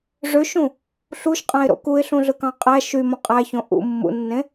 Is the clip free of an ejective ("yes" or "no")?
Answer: no